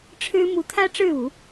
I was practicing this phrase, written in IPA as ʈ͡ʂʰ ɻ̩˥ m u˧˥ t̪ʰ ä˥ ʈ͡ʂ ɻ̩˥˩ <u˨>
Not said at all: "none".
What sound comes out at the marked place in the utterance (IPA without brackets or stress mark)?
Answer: u˨˩˦